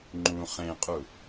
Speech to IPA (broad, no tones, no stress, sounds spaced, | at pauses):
ŋ͡ǃ ũ χ ẽ qʼ u